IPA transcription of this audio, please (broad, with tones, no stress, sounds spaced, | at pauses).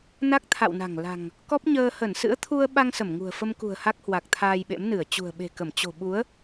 n a˦˥ k̚ t̪ʰ a̰˧˨ w n a̤˨˩ ŋ l a̤˨˩ ŋ | k ɔ˦˥ p̚ ɲ əː˧ h ə˧˩ n s ɨ̰˧˥ ə̯ t̪ʰ u˧ ə̯ ɓ a˧ ŋ s ə˧˩ m ŋ ṳ˨˩ ə̯ f ə˧ m k ṳ˨˩ ə̯ h a˦˥ k̚ h w a˨˩ k̚ t̪ʰ aː˧ j ɓ ḛ˧˥ m n ɨ˧˩ ə̯ t͡ɕ ṳ˨˩ ə̯ ɓ e̤˨˩ k ə˧˩ m t͡ɕ o̤˨˩ ɓ u˨˦ ə̯